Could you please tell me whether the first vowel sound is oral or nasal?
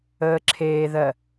oral